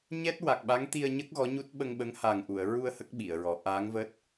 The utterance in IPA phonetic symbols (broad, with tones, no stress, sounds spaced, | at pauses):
ɲ ɛ˦˥ t̚ w a˨˩ k̚ ɓ a˧˥ ŋ t̪ i˧ ə̯ ɲ ə˦˥ k̚ ɣ ɔ˧˥ ɲ u˦˥ t̚ ɓ ə˧ ŋ ɓ ə˧˥ ŋ h a˨˩ ŋ ʔ u˨˩˨ ə̯ ɹ u˧ ə̯ h ə˦˥ k̚ ɓ i˨˩˨ ə̯ ɹ ɔ˨˩˦ ʔ aː˧˥ ŋ v əː˦˥ t̚